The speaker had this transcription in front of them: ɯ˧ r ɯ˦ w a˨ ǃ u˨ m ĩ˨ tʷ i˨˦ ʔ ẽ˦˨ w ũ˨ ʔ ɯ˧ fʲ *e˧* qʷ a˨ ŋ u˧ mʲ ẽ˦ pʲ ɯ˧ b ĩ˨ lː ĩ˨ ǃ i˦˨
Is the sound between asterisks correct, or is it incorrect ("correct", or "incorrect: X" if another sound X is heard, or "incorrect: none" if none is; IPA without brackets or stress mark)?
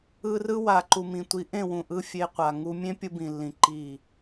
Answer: correct